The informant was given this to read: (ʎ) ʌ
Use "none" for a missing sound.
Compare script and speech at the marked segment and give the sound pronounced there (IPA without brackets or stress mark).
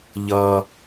ʎ